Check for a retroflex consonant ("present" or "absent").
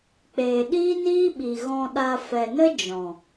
absent